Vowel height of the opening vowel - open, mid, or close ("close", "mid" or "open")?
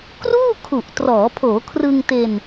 close